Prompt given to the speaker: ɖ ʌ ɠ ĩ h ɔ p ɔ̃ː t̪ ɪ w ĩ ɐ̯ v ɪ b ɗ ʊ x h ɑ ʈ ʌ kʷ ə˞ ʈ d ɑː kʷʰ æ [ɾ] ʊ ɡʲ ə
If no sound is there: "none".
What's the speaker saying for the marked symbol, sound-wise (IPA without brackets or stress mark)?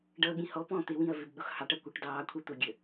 t̪